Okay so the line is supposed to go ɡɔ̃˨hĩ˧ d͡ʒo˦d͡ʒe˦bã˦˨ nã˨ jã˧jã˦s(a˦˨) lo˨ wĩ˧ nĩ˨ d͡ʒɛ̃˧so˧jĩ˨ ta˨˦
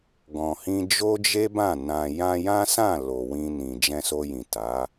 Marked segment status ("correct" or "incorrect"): incorrect